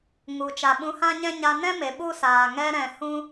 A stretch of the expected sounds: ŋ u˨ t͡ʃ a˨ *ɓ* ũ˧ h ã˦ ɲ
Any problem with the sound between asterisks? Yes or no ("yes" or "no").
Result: no